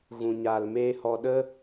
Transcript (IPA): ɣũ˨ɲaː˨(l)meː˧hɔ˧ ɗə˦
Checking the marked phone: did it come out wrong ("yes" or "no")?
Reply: no